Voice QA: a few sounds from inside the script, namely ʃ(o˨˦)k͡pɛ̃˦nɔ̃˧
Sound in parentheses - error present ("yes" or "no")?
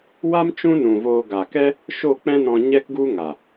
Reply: yes